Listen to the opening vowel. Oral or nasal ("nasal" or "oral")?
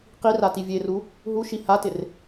oral